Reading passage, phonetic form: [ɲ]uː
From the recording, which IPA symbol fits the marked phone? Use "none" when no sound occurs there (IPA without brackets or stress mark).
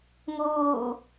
ŋ